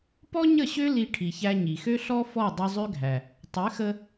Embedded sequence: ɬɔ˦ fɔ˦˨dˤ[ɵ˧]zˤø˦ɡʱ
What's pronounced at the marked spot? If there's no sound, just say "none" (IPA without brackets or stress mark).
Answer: ø˧